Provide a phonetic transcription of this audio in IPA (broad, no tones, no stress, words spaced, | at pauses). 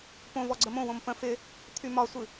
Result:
põvɔ ɡ͡ǀəmõwõm pə̃ fɪ | t̪ʰymɒsʷɨ